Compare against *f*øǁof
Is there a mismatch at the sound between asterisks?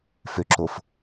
no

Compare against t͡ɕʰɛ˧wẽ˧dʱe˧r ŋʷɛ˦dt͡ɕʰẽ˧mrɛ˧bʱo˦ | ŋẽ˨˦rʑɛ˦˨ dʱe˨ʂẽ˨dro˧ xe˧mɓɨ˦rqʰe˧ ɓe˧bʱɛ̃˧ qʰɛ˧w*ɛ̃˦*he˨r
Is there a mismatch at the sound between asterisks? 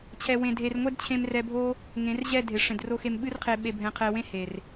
yes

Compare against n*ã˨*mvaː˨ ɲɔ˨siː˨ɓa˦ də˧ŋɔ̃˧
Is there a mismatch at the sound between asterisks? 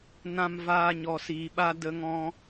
no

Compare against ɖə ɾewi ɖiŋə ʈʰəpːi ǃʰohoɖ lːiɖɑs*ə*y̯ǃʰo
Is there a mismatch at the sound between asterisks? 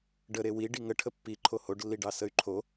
no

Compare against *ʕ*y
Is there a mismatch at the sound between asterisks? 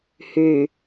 yes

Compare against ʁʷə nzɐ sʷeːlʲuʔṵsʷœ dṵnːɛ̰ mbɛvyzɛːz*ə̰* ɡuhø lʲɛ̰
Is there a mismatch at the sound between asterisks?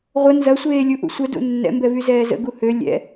no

